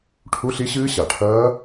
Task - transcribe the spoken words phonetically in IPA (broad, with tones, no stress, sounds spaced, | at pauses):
ʈʰ u˧˥˧ ɬ i˦˥ ɕ ɨː˦˥ ɕ a˩ ʈʰ ɐː˦˥